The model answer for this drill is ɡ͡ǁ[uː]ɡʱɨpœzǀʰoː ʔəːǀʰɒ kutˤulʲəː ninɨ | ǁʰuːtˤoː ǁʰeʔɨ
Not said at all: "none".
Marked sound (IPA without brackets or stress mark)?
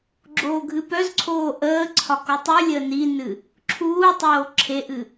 oː